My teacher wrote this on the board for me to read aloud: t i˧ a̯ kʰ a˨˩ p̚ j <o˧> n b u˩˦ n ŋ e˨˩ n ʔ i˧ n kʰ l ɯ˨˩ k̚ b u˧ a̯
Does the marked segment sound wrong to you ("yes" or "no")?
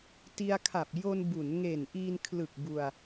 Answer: no